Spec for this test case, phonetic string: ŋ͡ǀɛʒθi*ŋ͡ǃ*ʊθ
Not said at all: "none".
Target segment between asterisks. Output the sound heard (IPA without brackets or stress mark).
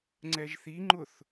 ŋ͡ǃ